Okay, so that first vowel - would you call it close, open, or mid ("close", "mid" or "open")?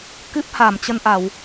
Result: close